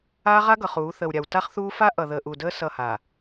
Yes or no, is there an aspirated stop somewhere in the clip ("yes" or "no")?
no